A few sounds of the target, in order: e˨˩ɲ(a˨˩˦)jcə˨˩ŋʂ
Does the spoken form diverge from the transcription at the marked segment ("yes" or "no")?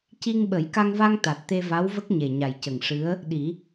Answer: yes